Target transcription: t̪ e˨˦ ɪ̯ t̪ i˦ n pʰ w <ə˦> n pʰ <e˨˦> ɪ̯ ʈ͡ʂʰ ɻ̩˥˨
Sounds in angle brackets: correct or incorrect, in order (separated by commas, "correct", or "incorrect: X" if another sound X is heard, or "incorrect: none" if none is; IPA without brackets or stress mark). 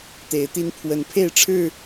incorrect: ə˨˦, incorrect: e˥˨